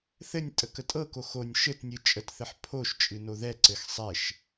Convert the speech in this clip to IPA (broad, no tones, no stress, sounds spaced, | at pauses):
θ ɘ nʲ tʼ ə k ə tʼ ɤ k o x o nʲ ʃ ɘ t nʲ ɨ t͡ʃʼ ə t θ ɘ ħ pʰ o ʃ t͡ʃʼ ɨ n o ð ɛ ǀ ɘ x sˤ ɛ ʃ